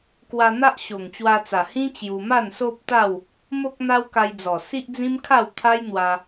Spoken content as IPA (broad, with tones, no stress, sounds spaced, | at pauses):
k w a˧ n̪ a˦ ʔ ɕ o˨˩ ŋ t͡ɕ w a˧ t͡s a˨˩ h ĩ˦ t͡ɕ j u˧ m a˥˧ n s o˦ p̚ t̪ a˥˧ w | m o˦ k̚ n̪ a˦ w k a˧ j d͡z ɔ˨˩ s i˦ ʔ d͡z ĩ˦ m kʰ a˥˧ w t̪ʰ a˦ j n̪ w a˧